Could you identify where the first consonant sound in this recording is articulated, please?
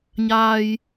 palatal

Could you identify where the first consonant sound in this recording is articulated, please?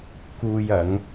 velar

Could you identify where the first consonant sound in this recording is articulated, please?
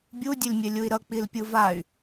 labial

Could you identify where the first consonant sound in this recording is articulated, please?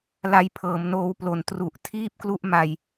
alveolar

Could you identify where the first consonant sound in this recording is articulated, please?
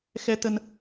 velar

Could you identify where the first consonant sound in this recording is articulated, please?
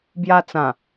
labial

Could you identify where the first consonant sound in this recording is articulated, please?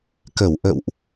velar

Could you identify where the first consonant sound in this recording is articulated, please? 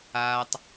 alveolar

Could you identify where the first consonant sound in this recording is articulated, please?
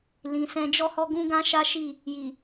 alveolar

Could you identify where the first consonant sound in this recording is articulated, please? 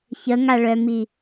palatal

